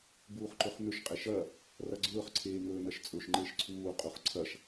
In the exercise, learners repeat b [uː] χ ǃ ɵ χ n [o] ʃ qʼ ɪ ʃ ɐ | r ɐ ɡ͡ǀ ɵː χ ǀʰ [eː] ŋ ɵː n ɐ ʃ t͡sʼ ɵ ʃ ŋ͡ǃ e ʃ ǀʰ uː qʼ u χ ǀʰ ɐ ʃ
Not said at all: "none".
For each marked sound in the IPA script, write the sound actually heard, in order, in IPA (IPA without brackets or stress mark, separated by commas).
uː, ɵ, eː